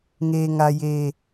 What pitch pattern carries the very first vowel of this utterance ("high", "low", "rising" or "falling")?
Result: low